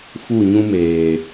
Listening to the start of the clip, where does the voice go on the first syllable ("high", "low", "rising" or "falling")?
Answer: falling